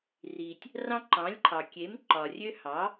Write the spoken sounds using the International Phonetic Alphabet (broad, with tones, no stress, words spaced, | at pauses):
ri˩tʲ | rɑ̃˦ ǃɑ̃˩˥lʲǃʰɑ˩kʲe˩˥m ǃɒ˩rʲø˦hɑ˩˥